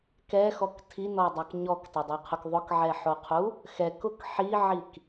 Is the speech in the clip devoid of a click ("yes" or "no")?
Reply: yes